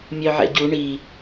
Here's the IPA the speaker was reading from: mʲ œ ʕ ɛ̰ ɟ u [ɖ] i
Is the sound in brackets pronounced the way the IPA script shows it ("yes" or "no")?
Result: no